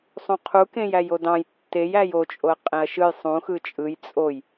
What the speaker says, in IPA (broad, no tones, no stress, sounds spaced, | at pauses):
sˤ ũ qʰ u k ẽ j æ j o d ɑ̃ j tː e j æ j o t͡ʃʼ o ɐ̯ qʼ ẽ ɐ̯ ʃ ɯ j sˤ ũ x ɯ t͡ʃʼ ɯ j t͡sʼ o j